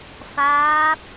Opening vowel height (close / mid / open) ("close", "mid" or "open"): open